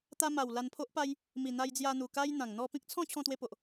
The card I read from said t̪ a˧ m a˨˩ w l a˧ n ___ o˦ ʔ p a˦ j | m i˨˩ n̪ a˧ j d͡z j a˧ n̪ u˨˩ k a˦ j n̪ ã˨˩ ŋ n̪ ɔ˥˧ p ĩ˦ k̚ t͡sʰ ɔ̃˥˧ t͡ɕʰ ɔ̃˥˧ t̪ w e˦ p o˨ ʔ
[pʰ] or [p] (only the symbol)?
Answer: pʰ